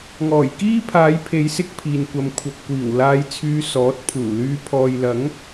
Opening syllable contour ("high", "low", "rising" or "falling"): low